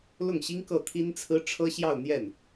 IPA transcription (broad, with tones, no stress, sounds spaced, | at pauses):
l ʊ˥˩ ŋ ɕ i˥ ŋ k ɤ˥˩ t̪ʰ i˥ n t͡sʰ ɹ̩˥ ʈ͡ʂʰ ɤ˥ ɕ j ɑ˥˧ ʊ̯ n̪ j ɛ˥˩ n